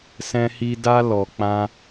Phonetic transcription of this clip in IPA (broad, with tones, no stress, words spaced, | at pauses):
sɛ̃˦hi˦ da˦ lɔ˧k͡pã˦